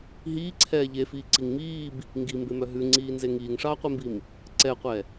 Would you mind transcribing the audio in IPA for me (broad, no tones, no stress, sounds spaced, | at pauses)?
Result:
ɦ iː ǀʰ ɛː ʎ e f iː ǀ i ŋ m iː b | ŋ ɡ i m b e m œ ɦ ʉ ŋ͡ǀ iː n z e ŋ iː ŋ ʂ ɑː qʷ e m b i m | ǀ ɛ qʷ ɛ